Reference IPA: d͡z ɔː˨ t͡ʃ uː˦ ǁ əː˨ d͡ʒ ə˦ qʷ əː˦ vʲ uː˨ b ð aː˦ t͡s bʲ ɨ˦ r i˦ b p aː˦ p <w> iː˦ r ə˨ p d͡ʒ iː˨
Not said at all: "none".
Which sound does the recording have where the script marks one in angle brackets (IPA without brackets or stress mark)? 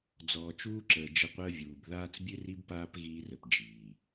ɣ